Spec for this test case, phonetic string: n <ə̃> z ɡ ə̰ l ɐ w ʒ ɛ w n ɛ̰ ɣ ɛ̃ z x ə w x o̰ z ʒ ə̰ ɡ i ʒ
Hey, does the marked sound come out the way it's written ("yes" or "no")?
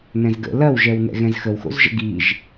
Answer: no